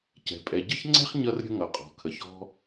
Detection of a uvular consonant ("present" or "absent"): present